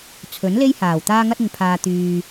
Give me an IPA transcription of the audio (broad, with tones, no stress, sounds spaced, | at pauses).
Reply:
t͡sʰ ɵ˨˥ n l e˥ j h aː˨˩ w t̪ aː˥ ŋ ɐ˥ t̚ ɪ˨ ŋ pʰ aː˨ t̪ yː˨